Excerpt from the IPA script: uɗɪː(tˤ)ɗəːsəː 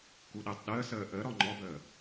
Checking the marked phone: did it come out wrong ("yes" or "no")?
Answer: no